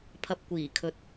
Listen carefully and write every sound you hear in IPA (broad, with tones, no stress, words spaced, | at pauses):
pʰɐ˨p̚kʷiː˨˩kʰɵ˨˥t̚